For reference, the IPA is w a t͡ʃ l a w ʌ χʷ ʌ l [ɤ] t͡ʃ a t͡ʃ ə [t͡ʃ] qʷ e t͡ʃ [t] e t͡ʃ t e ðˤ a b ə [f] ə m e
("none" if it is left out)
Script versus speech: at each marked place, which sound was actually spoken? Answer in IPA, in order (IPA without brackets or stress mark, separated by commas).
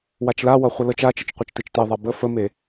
ɤ, t͡ʃ, t, f